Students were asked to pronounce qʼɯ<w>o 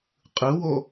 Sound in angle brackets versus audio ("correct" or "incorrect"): correct